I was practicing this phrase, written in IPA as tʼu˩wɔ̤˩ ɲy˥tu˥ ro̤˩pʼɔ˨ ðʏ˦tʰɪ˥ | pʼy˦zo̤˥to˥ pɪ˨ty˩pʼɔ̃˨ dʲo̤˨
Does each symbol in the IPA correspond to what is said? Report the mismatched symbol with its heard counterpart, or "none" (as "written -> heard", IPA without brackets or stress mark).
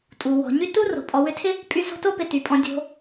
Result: ð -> w